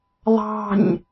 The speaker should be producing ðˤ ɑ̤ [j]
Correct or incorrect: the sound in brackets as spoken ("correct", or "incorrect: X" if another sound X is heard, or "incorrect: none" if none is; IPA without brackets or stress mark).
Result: incorrect: ɲ